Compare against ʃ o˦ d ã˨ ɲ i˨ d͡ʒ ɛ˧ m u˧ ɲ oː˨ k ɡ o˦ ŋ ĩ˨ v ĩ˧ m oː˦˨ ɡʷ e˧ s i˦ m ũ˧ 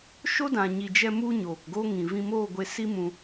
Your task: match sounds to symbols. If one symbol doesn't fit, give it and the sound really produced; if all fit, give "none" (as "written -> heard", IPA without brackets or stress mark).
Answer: none